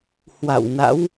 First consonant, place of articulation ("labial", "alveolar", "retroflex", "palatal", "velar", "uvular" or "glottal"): glottal